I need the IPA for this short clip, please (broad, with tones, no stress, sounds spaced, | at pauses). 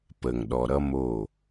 p ə˨ ŋ ɗ ɔ˨ ɾ ʌ˦ m o˦˨